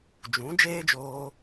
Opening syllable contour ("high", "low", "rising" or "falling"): rising